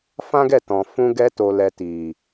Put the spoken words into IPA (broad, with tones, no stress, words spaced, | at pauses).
fã˦ɡɛ˦˨tɔ̃˨ fũ˧ɡɛ˧to˨lɛ˨ ti˨